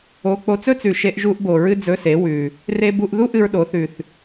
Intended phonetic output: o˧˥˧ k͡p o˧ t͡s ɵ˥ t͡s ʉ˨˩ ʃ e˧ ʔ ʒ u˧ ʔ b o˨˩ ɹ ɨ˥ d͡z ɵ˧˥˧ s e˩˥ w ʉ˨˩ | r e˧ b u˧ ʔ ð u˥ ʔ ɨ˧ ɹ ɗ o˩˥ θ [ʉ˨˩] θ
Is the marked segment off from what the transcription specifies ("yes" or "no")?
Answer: no